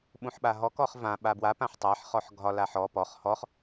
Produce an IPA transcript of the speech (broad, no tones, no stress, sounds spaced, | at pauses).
ɓ ũ ħ ɓ a ɦ ɔ k ɔ χ v ã ɓ a b w a p ã ħ tˤ a ħ χ ɔ ħ ɡʱ ɒ l a ħ ɔ p ɔ χ h ɔ χ